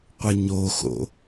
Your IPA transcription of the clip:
qʷ ə ɲ o x o̰

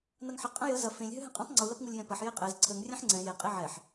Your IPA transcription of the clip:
n ɐ ŋ ħ ə qʼ ə̃ j ə z ɐ f ẽ lʲ ɦ ø ɦ ɛ̃ qʼ ɛ̃ tˤ ŋ͡ǀ u l ɐ p ŋ u lʲ j ɛ̃ p ɐ ħ j e qʼ ɛ z ǀʰ ə ŋ rʲ ẽ ħ ŋ͡ǀ ɛ̃ j e qʼ e ʕ ɛ ħ

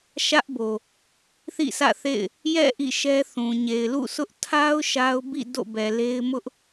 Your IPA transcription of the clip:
ʃ ä˦ ʔ b o˨ | θ ḭ˦˨ sʰ ä̰˦˨ θ ḛ˦˨ ɪ̯ | j ɛ̰˦˨ ʔ ḭ˦˨ ʃ ɛ˦ θ ũ˨ ɲ e˨ ɪ̯ l ṵ˦˨ sʰ ʊ˦ ʔ tʰ a˦ ʊ̯ ʃ a˦ ʊ̯ b ḭ˦˨ d o̰˦˨ b ɛ˨ l e˦ ɪ̯ m ʊ˦ ʔ

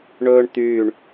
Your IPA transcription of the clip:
ɳ ɵː ɳ t̪ yː ɳ

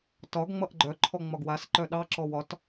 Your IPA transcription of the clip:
t ɒ ɡ ŋ͡m ʌ ʔ ɡ͡ǃ œ ǃʰ ɔ ŋ͡m ɒ ɡ w a s ǃ œ ɗ ɑ ǁ ɔ w ɒ t

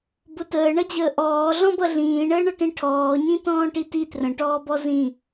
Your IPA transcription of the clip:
b ʊ t əː ɳ ʌ d͡ʑ əː ʔ ɔː ɮ ɔ̃ b ʌ ɮ ĩː ɳ əː ɳ ʌ ʈ ĩ ʈʰ ɔː ɲ ĩ t ɔ̃ː ʈ i t i t r ə̃ ʈ ɔː b ɔ z ĩ

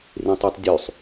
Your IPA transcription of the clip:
r ĩ tˤ ʉ tˤ dʲ ʉ sˤ

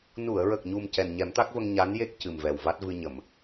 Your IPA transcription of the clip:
n u˨˩˨ ə̯ ɹ ə˨˩ k̚ ɲ u˨˩ m c ɛ˨˩ n ɲ ɛ˨˩˦ m t̪ a˦˥ k̚ v ə˧ ŋ ɲ a˧˥ n j e˦˥ k̚ c ɨ˨˩ m v ɛ˨˩ w v a˦˥ t̚ v ɨ˧ ɲ ə˨˩˨ m

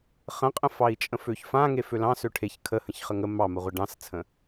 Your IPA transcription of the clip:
χ ə̃ qʼ ə̃ f ɑ i̯ t͡ʃʼ ə̃ f ø ç f ã ŋ e f ø l ɑ̃ s ø ʈʰ e ç kʰ ə h ə̃ ç χ ə ŋ ə m ɑ m ə ʁʷ ə ɖ ɑ̃ s t͡sʰ ə̃

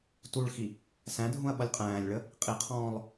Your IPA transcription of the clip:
t u ɭ x i | s æ̃ dʱ ũ ɐ̯ ɓ ʌ lʲ qʼ æ̃ː lʲ ɭ ə | qʼ i qʰ ɔ̃ː lˠ

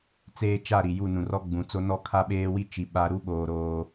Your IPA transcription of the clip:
t͡s eː˦ t͡ʃ a˦˨ ɾ i˨ j u˦˨ n ũ˨ r ɔ˦ ɡ͡b ũ˨ t͡s o˦ n ɔ˦ kʰ a˦ ɓ eː˦ w i˦ t͡ʃ i˨ ɓ a˦ ɾ u˦ ɓ oː˨ ɾ oː˦

